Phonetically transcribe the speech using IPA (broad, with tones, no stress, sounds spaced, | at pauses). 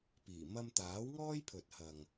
p iː˨˩ m ɐ˧ m t̪ aː˨˥ w ŋ ɔː˥ j pʰ ɵ˨ t̚ h ɐ˨ ŋ